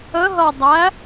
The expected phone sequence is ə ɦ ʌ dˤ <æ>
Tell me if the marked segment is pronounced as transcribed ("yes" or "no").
yes